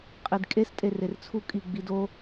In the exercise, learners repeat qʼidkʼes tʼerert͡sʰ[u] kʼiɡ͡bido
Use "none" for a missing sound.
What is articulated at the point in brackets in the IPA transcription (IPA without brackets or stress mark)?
u